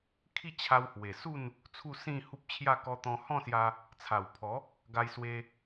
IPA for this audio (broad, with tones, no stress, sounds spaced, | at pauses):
kʰ i˥˧ t͡ɕʰ a˧ w h w e˨˩ s u˥˧ n | t͡sʰ u˥˧ s ĩ˥˧ h u˦ p̚ t͡ɕʰ j a˥˧ k ɔ˧ t̪ ɔ̃˧ h ɔ̃˥˧ s j a˧ | t͡sʰ a˨˩ w pʰ ɔ˨˦ | ɡ a˧ j s w e˧